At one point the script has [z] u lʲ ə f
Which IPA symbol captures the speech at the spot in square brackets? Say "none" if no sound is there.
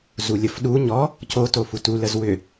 z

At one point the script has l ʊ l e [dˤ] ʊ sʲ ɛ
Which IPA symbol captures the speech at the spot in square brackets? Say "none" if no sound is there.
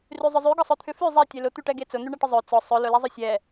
zˤ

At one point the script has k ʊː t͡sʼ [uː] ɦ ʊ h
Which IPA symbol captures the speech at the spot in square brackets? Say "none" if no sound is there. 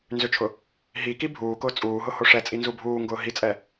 uː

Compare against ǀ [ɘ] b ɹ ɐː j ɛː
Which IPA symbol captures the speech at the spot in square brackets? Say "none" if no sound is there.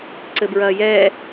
ɘ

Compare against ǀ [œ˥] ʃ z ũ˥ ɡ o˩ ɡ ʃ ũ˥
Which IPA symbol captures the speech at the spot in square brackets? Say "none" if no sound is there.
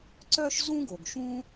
œ˥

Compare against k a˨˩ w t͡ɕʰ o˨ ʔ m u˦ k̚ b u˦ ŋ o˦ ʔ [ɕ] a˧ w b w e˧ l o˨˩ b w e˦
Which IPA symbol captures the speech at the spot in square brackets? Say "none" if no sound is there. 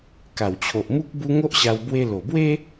ɕ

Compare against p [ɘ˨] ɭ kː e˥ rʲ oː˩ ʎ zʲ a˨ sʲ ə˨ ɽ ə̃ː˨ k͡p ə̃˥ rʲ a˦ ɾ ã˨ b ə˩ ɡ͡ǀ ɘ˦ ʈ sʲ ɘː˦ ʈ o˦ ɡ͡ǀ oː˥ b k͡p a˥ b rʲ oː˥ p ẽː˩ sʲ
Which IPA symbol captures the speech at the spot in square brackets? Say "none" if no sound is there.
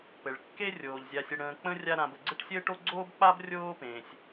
ɘ˩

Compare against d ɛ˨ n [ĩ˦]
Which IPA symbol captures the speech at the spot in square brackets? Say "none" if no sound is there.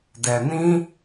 ĩ˦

